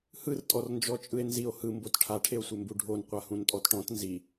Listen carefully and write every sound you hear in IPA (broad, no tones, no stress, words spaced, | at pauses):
hɯrtʼɔrnd͡ʒɔ t͡ʃʼɯe̯nzio̯ hɯmbot ʈʰaʈʰeo̯sʷembu ɖʱonqʷa hũntʼɔtʈɔ̃t nzi